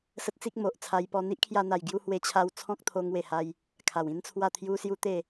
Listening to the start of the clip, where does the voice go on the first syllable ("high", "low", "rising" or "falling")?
high